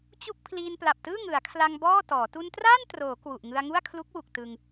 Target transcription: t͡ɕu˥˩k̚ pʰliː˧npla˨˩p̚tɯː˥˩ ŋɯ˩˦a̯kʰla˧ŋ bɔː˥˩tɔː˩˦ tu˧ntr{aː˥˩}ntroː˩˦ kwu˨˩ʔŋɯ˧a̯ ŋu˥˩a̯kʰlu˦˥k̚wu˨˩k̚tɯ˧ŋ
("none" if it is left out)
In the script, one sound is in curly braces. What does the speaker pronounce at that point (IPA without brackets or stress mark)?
aː˥˩